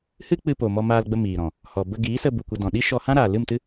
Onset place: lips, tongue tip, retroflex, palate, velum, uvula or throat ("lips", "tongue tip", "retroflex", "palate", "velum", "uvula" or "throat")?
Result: throat